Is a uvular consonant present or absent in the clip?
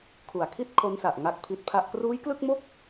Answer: absent